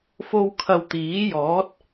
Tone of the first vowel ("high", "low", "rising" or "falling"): high